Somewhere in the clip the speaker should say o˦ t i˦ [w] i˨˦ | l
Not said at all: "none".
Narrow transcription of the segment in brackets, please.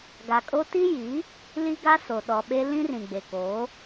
j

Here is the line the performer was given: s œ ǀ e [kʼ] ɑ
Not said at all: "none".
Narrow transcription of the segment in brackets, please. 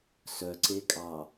kʼ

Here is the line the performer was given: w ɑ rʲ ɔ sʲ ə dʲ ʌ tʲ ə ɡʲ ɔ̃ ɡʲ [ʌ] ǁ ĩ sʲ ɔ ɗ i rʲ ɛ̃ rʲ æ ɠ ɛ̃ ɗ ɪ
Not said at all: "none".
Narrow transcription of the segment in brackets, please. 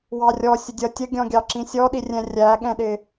ɑ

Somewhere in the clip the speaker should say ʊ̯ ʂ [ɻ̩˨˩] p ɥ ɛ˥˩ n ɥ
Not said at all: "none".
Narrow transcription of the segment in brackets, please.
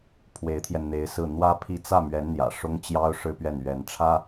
ɻ̩˥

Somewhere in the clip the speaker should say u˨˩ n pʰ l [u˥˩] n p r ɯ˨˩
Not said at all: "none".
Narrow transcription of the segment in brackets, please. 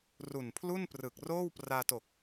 u˥˩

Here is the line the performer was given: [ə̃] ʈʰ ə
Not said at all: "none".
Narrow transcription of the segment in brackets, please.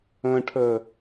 ə̃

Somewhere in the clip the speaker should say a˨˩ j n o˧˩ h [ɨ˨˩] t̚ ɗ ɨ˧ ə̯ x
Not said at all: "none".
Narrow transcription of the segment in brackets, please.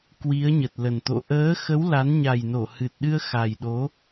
ɨ˨˩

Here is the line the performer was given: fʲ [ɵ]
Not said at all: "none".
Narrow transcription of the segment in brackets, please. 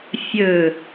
ɵ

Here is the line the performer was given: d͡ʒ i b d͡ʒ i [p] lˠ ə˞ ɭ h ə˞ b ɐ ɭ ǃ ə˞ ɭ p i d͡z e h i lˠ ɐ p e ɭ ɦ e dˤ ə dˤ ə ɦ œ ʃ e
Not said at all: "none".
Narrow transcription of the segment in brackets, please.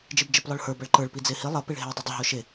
p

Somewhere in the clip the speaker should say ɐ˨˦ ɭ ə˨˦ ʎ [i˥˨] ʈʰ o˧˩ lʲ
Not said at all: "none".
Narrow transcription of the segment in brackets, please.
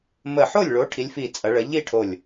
i˥˨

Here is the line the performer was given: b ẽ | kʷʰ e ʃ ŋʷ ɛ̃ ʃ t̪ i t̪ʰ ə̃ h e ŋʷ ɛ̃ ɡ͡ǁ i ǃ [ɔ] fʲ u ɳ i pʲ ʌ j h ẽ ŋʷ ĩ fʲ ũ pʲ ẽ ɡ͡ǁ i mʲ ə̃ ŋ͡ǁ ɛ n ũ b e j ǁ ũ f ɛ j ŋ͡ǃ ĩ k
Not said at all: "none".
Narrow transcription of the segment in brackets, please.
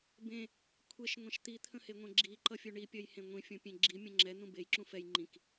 ʌ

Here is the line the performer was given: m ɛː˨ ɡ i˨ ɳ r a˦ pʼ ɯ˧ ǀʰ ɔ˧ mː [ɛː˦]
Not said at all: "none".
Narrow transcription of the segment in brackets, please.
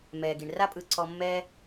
ɛː˦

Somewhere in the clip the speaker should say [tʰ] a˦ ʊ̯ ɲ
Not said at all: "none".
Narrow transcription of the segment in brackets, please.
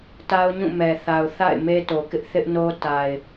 t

